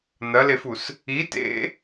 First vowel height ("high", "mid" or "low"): low